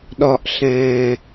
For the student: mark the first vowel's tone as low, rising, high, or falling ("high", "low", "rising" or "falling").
low